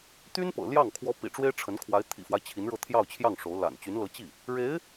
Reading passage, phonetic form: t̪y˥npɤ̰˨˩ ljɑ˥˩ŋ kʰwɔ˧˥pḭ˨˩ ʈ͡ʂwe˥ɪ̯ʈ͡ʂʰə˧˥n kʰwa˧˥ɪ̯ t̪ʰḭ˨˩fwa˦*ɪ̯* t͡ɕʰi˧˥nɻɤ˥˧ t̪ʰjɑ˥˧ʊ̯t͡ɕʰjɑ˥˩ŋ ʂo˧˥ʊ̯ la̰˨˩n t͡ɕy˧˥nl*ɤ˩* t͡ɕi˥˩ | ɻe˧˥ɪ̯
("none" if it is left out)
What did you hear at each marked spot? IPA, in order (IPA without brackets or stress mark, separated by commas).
ɪ̯, ɤ˧˥